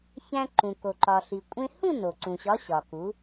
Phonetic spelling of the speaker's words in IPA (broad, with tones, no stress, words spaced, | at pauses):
çæ̃˧ ǃũ˩ko˩ǃɒ˩ɬi˩ kʷʼẽ˧hũ˥˧ no˩ǀũ˩ɕɒ˨˥ ɕɒ˩ku˩˧